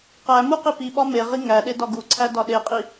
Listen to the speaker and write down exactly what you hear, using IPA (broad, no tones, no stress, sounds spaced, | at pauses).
q æ m u q i p i ɓ ɒ m e ʁ i ŋ æ ɗ e d ɒ ɡ u ǀʰ æ d ɒ ɗ e qʼ i